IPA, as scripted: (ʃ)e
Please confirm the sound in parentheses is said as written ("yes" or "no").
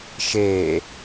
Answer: yes